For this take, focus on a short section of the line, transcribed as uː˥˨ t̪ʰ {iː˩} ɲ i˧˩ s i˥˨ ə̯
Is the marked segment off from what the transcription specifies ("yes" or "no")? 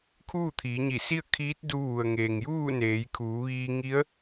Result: yes